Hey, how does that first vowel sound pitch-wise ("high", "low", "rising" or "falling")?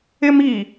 high